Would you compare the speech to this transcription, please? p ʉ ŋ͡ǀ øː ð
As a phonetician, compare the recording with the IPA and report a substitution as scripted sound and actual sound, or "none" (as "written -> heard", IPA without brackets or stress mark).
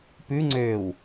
ð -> w